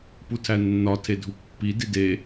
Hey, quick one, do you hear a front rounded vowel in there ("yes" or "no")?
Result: no